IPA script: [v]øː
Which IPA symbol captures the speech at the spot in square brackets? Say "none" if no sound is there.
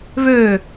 v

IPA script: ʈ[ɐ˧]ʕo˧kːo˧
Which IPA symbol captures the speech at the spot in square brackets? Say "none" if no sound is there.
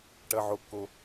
ɐ˧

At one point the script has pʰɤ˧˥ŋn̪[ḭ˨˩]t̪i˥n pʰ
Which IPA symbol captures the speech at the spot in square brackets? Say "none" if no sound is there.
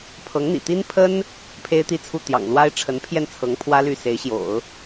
ḭ˨˩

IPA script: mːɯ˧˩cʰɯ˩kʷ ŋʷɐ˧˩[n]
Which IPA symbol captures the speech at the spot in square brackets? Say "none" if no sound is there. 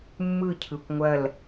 l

